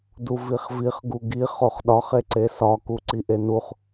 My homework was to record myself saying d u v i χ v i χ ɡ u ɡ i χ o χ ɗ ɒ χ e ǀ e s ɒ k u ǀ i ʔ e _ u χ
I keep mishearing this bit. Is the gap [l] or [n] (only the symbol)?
n